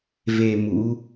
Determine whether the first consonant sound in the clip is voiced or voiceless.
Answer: voiced